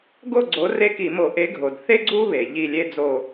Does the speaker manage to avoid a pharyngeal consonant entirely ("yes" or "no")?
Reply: yes